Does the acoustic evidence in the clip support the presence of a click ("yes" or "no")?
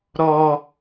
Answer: no